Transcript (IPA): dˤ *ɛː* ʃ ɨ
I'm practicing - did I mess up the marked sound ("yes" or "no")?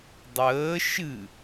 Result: yes